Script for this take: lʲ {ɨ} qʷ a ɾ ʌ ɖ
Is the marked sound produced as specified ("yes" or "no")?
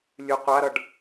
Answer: yes